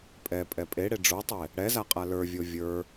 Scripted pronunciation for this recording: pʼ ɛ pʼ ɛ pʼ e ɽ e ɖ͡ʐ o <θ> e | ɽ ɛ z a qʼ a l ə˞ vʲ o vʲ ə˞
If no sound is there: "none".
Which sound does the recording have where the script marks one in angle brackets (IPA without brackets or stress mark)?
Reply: tˤ